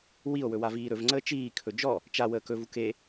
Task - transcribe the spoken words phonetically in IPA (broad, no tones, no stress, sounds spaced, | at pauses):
w i o̯ w ɵ w a v iː ɾ ɵ v ŋ͡ǀ əː t͡ʃ iː kʰ ɵ d͡ʒ ɔ | t͡ʃ a w əː k ɵ v u k e